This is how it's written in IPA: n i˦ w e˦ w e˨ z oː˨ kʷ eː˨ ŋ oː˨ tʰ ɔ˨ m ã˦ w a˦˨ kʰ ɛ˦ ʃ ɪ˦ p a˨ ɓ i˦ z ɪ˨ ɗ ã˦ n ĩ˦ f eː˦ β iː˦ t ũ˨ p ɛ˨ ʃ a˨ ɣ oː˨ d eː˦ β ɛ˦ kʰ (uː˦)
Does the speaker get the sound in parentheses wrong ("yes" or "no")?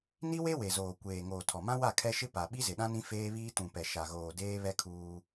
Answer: no